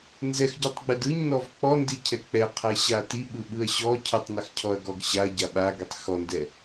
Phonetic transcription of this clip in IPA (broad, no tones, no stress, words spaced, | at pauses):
nzɛxɟɔtˤɡ͡bɛd ɯɲnɔv k͡pɔndicʰɛ k͡pɛqʰɛɕa tiɓɯɓɯɐ̯ ɕɔ cʰɯtˤnaxcʰɔɐ̯ɡɔɡ ɕaɐ̯ɟa ɓaɡitˤ xɔndɛ